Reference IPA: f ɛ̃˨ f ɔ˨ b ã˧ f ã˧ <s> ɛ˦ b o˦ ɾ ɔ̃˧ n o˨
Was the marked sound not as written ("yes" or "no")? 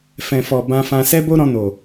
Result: no